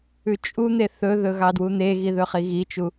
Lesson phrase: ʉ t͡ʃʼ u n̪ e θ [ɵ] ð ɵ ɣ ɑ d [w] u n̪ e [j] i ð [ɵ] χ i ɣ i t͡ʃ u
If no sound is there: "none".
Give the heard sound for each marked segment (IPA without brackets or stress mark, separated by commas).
ɵ, w, ɣ, ɵ